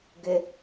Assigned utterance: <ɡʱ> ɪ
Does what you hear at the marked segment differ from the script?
yes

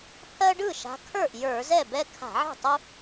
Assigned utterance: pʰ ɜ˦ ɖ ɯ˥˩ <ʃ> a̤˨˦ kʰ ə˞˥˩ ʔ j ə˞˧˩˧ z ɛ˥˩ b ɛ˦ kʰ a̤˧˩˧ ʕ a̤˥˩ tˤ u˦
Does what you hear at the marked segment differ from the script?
no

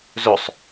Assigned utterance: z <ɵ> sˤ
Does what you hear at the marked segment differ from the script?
no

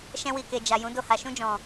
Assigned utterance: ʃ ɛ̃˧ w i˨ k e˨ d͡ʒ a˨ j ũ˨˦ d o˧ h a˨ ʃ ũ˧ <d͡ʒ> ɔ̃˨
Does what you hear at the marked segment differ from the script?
no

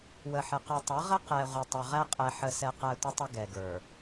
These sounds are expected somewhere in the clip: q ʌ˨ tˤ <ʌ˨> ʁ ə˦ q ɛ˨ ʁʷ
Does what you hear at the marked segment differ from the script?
yes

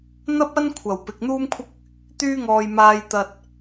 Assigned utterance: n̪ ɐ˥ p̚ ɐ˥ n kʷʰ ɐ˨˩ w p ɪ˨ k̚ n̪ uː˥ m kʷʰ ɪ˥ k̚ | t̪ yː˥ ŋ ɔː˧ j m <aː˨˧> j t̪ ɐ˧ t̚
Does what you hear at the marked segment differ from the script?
yes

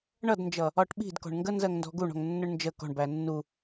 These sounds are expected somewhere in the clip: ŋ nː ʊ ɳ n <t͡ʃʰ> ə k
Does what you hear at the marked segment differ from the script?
yes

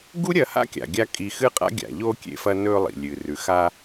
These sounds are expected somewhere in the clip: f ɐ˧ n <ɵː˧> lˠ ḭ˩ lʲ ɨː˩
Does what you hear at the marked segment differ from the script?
no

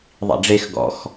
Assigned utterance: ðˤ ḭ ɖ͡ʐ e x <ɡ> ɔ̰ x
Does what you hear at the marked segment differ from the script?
no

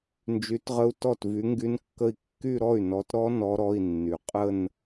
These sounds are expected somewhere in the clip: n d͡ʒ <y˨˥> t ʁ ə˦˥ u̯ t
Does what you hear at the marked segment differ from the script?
no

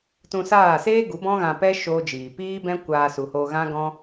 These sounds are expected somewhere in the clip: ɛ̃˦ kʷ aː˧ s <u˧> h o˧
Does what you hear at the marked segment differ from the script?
yes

